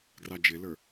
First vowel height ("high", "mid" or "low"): low